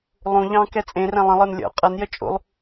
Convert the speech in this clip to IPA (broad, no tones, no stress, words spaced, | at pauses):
lˠũ ʎɑ̃ kɛt͡sʼẽrɛ̃ lˠə̃lˠə˞n lʲɔ̰ qʼʌnjə t͡ʃʼṵlˠ